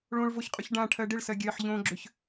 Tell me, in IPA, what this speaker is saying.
ɭ õ ɭ v o ç qʼ ʏ ç ɖ ã ʈʰ ɜ ɖ ɪ ɭ s ɜ ɡʲ ɜ ħ ʎ õ ɡ͡ǁ ʏ ç

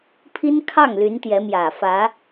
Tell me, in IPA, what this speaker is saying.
pʰ i˥ n kʰ ɑ˥˩ ŋ l y˧˥ n t̪ j ɛ˧˥ m j ä˨˩ f ä˧˥

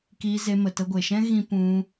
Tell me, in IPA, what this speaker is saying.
k iː˧ z e˧ m ə˨ t ə˧ ɡʷ e˨ ʃ ɛ̃˦ ɣ ĩ˦ p ũ˧

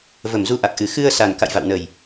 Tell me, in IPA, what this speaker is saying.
v ə˧˩ m z u˨˦ ʔ a˨˩ k̚ ʔ ɨ˨˩ x ɨ˧ ə̯ s a˨˩ n k a̰˧˨ j v a̰˧˨ w n ə˨˩ j

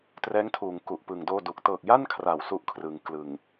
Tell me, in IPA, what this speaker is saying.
t r ɛː˦˥ ŋ tʰ uː˩˦ ŋ k u˨˩ ʔ p ɯ˨˩ ŋ d oː˥˩ d u˨˩ k̚ t ɤː˨˩ k̚ j a˥˩ n kʰ r a˩˦ w s u˦˥ ʔ kʰ r ɯ˩˦ ŋ k l ɯ˨˩ ŋ

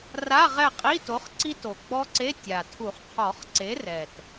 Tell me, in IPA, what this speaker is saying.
r a˧˥˧ ʁ ɛ˦˨ qʼ i˧˥˧ t o˨˥ χ ǀ i˦˥ t o˨˩ ɡ͡b ɔ˦˥ ǀ e˧˥˧ tʲ a˨˩ tʰ u˨˩˦ χ qʰ ɔ˨˩˦ χ ǀ e˨˥ r ɛ˨˩ t

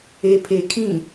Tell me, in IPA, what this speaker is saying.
e pʰ e kʰ ĩ

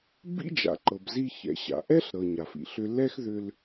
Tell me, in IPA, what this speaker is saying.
b ḭ˥ d͡ʒ a̰˩ ǃ ɤ˩ b z i˧ ç ɛ̰˩ ɕ a̰˩ ʔ ɛ˥ ɬ ɾ ɤ˩ ɲ a˩ f ḭ˩ ɬ ʏ˧ l ɛ˥ x ð ʏ˧ l

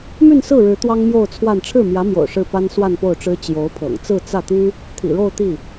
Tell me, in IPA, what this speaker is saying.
m y˥˧ n s ɹ̩˥˩ ɻ ɻ̩˧˥ t̪ w ɑ˥ ŋ m j o˥˧ ʊ̯ t͡sʰ w a˥˧ n ʈ͡ʂʰ ɻ̩˥˩ m j ä˧˥ m j o̰˨˩ ʊ̯ ʂ ɻ̩˥˩ p a˥ n s w a˥˧ n p o˥˩ ʊ̯ ʈ͡ʂ ɻ̩˥ t͡ɕ j o˧˥ ʊ̯ pʰ ɤ̰˨˩ ŋ t͡s ɹ̩˥˧ t͡s ä˥˩ t̪ y˥ | t̪ʰ ḭ˨˩ ɻ o˥˧ ʊ̯ t̪ i˥˩

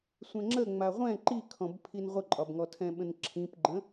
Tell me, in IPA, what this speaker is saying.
sʷ ɛ̃ ŋ͡ǁ ə ŋ͡m a ʁʷ ɛ̃ ǃ i kʰ ɔ̃ b pʰ i n ʁʷ ə ǃʼ ɒ b ŋ ɔ tʰ ɛ̃ ɓ ə̃ n ǁʰ ĩ p ɡ͡ǃ ə̃

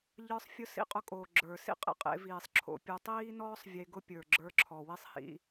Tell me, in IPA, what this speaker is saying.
ʎ ə˞˧˥ sˤ fʲ ʊ˧˥ s ḭ˧ qʼ ʊ˧ kʼ oː˩ ɡ͡ǁ ə˞˩ s ḭ˥ qʼ ḛ˩ qʼ ḛ˩˧ v iː˩ sˤ ǁʰ o̰˩˧ pʲ u˩˧ tˤ iː˥ n ɔː˥ sˤ vʲ e˧ ɡ ʊ˥ pʲ ə˞˩ ɡ͡ǁ ə˞˧ ǁʰ ɔ˩ w i˥ sˤ h ḭ˧

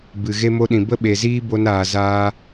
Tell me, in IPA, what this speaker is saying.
b ɨ˨ ɣ e˧ m o˧ ɗ ĩ˨ b ə˦ ɓ e˨ z iː˦ b o˧ n aː˨ z aː˧

